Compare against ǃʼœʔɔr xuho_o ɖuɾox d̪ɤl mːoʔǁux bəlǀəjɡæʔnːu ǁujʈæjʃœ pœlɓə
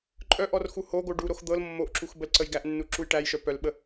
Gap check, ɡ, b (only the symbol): ɡ